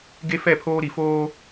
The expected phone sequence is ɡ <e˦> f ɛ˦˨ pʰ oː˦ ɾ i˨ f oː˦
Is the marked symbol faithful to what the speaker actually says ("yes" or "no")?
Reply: yes